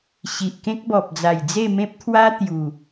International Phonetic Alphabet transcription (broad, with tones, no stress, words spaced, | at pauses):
ɕi˨ʔkẽ˦k̚bɔ˨p̚ d͡za˨˩jd͡ze˥˧mẽ˦p̚t̪ʰwa˦ t̪ju˨˩